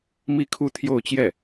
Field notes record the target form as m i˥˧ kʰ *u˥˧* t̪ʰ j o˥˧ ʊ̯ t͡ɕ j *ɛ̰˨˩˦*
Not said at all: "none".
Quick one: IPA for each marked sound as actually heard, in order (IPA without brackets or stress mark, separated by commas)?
u˥˧, ɛ˥˩